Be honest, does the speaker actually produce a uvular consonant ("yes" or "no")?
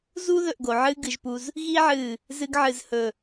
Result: no